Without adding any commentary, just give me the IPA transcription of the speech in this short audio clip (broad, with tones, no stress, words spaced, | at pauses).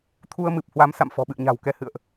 t̪ʰu˧ə̯mɨ˨˩p̚hwa˨˦m sa̰˧˨mfɔ̤˨˩ɓɨ̰˧˨ə̯ ɲa̤˨˩wkɛ˨˦hɨ̰˧˨ə̯ʔ